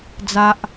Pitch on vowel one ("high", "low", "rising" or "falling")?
high